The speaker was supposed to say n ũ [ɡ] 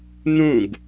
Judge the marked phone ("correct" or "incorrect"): correct